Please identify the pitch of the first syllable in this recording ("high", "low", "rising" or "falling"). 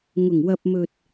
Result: low